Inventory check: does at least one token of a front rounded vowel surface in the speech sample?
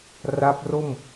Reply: no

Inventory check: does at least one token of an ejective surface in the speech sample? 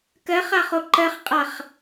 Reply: yes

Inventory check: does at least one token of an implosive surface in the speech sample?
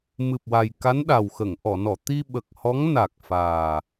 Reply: yes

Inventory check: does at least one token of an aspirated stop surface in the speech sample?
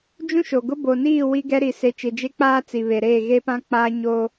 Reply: no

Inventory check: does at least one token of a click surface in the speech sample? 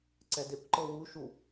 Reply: yes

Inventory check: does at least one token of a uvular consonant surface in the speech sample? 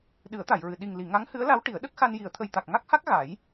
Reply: no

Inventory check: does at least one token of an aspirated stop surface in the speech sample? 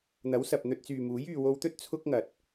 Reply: yes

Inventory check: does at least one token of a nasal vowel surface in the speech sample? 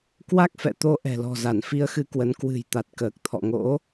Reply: no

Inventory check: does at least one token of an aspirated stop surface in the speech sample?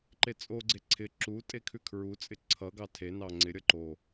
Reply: yes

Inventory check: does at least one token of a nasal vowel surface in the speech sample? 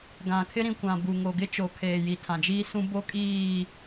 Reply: yes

